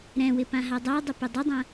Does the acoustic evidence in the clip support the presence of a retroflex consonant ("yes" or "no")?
no